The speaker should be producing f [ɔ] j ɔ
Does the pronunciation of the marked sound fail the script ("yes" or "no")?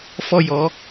no